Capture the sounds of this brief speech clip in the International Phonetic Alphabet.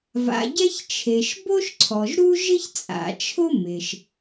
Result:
va̰˩ɟɛ˥ç t͡ʃʰe˩ʃbo˥ʃǀʰɔ˩ʒɾu˥ ʒɪ˥çt͡sʼa̰˩t͡ʃʰʊ˥ mɪ˩ʃ

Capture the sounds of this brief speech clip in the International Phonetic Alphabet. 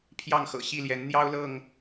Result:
pʰjɑ˥˨ŋxɤ̰˨˩ɕi˥˨ljɛ˨˦n n̪jɑ˦ʊ̯lɤ˥˨ŋ

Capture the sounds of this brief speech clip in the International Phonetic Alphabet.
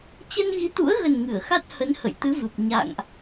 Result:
t͡ɕə˧nɣi˨˦t̪ṵ˧˥ə̯ɣə˨˩n ŋɨ˧˩ə̯xa˦˥t̚hə˨˦nhə̰˧˨j t̪ɨ˨˦vɨ˨˩p̚ ɲa̰˧˨ŋʔ

